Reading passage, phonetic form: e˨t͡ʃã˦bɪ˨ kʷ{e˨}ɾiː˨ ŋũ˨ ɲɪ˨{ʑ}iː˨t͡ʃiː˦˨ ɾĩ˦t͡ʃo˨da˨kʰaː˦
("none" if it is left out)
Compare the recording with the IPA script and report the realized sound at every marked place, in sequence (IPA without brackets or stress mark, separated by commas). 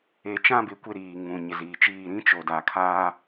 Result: e˦, z